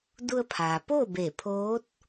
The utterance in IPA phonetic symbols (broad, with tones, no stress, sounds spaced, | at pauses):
d u˧ ə̯ pʰ aː˩ p oː˥˨ b e˧˩ pʰ oː˧˥ t̚